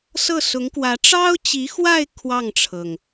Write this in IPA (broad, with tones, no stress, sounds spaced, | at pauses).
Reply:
s ɤ˥˩ s ʊ˧˥ ŋ k w ä˧˥ ʈ͡ʂ ɑ˥ ʊ̯ t͡ɕ i˧˥ x w a˥˧ ɪ̯ kʰ w ɑ˥˩ ŋ ʈ͡ʂʰ ɤ˩ ŋ